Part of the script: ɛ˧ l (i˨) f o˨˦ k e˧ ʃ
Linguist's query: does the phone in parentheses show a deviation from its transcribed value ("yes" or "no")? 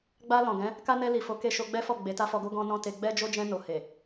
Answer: no